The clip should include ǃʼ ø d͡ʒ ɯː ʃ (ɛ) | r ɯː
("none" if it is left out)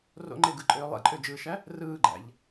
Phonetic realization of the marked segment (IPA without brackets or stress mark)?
æ